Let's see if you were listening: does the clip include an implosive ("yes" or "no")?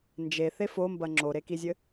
no